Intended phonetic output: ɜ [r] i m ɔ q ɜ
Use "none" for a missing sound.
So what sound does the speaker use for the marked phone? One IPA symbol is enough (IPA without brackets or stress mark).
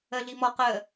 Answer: ɮ